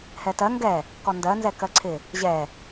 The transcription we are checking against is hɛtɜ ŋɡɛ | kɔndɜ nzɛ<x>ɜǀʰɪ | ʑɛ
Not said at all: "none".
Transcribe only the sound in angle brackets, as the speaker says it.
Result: k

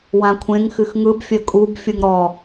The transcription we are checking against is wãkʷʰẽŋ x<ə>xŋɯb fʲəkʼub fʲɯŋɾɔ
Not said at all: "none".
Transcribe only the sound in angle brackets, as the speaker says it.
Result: ɨ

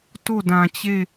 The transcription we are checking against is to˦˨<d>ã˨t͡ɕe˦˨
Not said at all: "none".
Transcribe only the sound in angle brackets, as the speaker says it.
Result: d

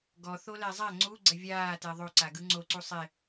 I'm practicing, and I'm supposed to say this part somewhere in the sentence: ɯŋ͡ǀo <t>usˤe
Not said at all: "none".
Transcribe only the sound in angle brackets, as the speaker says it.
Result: ǀ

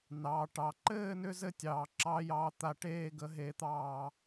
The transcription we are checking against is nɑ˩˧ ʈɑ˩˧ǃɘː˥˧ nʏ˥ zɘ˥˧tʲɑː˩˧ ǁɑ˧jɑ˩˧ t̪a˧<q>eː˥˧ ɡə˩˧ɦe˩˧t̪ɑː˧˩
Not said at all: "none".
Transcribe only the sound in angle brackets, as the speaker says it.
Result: ʈ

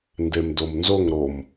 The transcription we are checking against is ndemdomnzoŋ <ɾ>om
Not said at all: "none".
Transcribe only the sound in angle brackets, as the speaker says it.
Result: ɾ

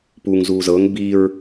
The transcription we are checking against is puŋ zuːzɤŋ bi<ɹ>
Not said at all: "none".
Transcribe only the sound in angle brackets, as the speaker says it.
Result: ɹ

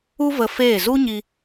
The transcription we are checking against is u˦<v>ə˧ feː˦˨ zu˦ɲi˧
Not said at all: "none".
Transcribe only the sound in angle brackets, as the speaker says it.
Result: v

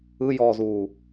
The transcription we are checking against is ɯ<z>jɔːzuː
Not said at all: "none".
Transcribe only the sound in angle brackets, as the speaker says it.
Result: none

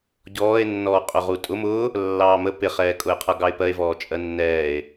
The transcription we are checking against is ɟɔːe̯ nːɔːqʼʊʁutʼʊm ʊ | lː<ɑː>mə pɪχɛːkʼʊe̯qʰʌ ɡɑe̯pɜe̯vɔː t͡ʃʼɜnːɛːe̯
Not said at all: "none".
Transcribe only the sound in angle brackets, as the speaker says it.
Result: ɑː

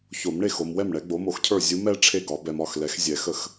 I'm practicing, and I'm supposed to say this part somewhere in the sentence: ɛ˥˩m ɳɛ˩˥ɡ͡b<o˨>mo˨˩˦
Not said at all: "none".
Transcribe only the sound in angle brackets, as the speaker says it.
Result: o˩˥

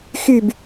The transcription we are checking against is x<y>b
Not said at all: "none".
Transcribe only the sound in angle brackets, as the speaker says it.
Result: y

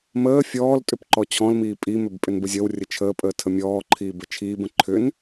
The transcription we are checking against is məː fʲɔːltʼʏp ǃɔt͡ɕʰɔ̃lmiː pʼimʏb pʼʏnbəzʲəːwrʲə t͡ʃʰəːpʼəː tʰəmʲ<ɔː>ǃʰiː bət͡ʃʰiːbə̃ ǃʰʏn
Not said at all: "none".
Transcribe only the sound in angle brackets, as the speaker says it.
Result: ɔː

